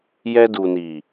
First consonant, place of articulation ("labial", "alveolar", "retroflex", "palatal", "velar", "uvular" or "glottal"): palatal